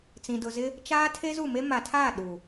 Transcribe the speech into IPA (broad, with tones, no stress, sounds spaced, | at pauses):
t͡s ĩ˨ d ʊ˨ z ɪ˦ | t͡ʃ aː˦ tʰ e˦ z u˦˨ m e˦ m a˨ tʰ aː˦˨ ɗ u˨